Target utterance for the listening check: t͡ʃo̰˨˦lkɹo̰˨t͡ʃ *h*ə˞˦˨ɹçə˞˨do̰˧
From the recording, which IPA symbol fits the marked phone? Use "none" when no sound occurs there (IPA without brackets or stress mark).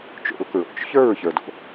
ç